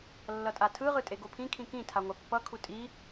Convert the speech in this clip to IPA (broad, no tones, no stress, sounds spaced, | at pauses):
lː ʌ tʼ a tʰ ɯ ʁ ɯ tʼ e ɡ o pʰ ĩ kʰ ĩ k ĩ tʰ a ŋʷ a pː ʌ kʰ u tʼ i